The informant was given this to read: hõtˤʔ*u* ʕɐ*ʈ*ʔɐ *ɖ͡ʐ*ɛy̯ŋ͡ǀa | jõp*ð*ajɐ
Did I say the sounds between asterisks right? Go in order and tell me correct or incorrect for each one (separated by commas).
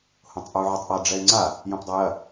correct, incorrect, correct, incorrect